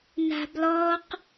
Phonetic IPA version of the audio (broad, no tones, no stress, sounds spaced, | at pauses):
n a̤ b l ɔ q